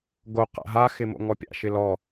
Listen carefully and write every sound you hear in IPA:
ɡ o q a̰ ɦ a x ɪ m o̰ ŋ ɔ pʲ a̰ ʃ ɪ l ɔ

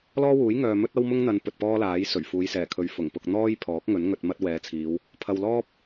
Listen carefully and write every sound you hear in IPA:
l ɔː˥ w uː˨˥ j ŋ œː˨ m ɵ˥ t̚ ɐ˥ w m ʊ˥ ŋ n̪ ɐ˨˧ n p ɵ˨ t̚ p ɔː˥ l aː˨˥ j s ɵ˨˩ ɥ f uː˨˧ j s ɛː˨˩ kʰ ɵ˨˧ ɥ f ʊ˨˩ ŋ p ʊ˧ k̚ n̪ ɔː˥ j pʰ ɔː˨˥ k̚ ŋ ɵ˨˥ n ŋ ɵ˧ t̚ m ɐ˥ t̚ w ɛː˨˧ t͡sʰ iː˨˧ w | pʰ ɐ˨ w l ɔː˥ p̚

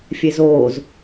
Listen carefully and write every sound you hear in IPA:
fʲ e z oː z

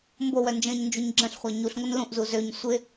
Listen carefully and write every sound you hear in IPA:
m b o w œ n d͡ʒ ə̃ː ɲ n d͡ʒ u ɲ ɡ͡ǁ ə̃ ɬ χʷ a ɲ u ɬ ŋʷ ə n l ũ ʔ z u z ø ɲ sʷ ɪ

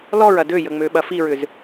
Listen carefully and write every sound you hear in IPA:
l ɔ ɹ ɐ d ø j ə ŋ͡m ø ɓ ɐ f i ɹ ʏ z

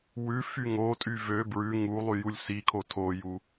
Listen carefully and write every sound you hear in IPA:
w ʉ f y ŋ o tʼ y v ø b ɹ ʉ ŋ u lˠ y j u lʲ s i kʰ o tʰ o j u

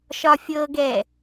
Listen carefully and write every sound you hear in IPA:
ʃ ɒ fʲ ɤ ɡ ɛ

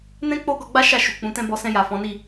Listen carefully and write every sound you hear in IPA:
n ɛ̃˦ k͡p o˦ ɡ ɔ˧ ɡ͡b a˦ ʃ a˦˨ ʃ u˨ k͡p ũ˨˦ t ɛ̃˦ b ɔ˧ s ɛ̃˧ j a˨ f ɔ̃˨˦ n i˦˨

